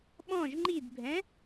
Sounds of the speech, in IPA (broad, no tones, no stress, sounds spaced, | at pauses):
ɓ ɔ̃ ʒ ŋ͡ǃ i d bʱ ɛ̃